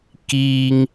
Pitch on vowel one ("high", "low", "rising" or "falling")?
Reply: high